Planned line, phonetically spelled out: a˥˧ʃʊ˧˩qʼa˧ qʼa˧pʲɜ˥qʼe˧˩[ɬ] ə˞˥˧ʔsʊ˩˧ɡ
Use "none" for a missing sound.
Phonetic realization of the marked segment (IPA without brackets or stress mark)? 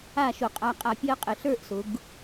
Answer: ɬ